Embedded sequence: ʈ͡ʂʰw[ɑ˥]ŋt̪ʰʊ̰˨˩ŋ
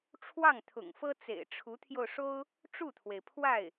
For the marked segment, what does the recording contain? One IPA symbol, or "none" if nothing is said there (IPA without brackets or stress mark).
ɑ˥˩